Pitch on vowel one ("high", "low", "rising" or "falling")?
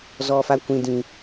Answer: high